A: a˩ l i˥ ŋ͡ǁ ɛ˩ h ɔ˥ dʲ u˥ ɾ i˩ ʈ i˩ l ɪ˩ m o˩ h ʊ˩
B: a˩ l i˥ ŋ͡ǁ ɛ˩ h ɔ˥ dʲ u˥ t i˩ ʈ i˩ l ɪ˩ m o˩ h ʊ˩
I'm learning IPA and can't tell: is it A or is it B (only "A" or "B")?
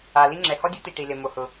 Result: B